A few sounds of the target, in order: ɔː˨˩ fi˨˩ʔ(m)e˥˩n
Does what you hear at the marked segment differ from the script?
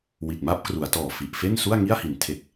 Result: yes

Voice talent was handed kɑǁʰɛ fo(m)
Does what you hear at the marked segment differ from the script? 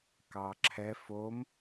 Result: no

